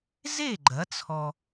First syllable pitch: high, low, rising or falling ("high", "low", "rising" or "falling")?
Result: falling